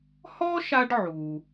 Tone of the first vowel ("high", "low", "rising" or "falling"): high